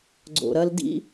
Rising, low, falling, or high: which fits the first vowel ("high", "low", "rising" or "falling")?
low